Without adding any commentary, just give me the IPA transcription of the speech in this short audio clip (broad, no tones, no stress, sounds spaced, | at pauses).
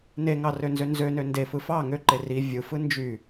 n e ŋ ɑ r ø n z ø n z ø n ø n d e f ɯ f ɑ ŋ ø ǃ e r i vʲ ɯ f ɯ n d͡ʒ y